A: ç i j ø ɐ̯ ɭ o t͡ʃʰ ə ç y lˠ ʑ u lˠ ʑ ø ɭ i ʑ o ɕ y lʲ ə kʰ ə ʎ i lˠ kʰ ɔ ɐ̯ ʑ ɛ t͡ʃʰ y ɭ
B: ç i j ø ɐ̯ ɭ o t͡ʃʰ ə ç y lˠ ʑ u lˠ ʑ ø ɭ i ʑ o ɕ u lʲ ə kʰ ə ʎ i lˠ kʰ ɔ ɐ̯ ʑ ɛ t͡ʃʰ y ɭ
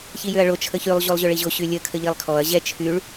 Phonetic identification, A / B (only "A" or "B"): A